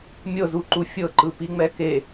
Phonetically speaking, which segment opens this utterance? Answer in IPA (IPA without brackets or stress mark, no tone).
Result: mʲ